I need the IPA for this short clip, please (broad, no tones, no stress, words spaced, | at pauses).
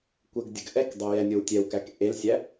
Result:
kʷəɡdʲəɡ ʔɛkdˤɛ jɛnʲowtʲɛwkæk ʔelsʲæ